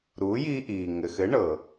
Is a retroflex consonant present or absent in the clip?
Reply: present